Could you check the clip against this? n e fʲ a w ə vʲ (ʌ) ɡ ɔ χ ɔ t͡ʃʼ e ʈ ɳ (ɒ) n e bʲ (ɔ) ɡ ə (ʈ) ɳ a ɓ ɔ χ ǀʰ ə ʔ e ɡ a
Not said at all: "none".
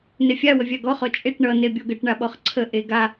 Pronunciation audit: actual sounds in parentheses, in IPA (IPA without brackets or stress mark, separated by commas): a, ʌ, ɔ, ʈ